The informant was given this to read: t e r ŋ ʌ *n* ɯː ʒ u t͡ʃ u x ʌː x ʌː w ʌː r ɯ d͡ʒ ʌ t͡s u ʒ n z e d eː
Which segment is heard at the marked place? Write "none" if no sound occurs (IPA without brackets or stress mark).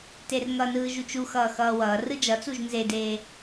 n